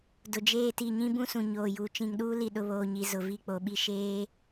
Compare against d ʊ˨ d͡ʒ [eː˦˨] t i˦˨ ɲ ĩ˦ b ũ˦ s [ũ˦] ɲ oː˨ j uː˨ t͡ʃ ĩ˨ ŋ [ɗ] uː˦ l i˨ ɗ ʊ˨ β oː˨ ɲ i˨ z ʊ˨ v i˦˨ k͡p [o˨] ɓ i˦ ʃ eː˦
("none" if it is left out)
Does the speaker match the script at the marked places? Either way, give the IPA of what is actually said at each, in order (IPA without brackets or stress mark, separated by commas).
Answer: eː˦˨, ũ˨, ɗ, o˨